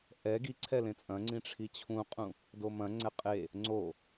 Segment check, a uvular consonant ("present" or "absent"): present